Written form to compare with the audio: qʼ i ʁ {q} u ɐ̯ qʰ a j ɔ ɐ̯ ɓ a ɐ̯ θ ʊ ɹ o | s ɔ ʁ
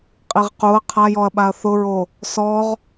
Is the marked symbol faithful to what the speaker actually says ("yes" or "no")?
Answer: yes